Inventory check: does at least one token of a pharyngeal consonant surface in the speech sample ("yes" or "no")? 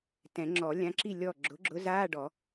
no